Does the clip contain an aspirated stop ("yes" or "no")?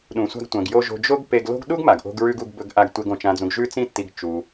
no